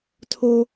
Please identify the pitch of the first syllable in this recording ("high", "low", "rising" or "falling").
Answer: high